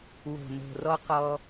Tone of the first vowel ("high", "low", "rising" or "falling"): low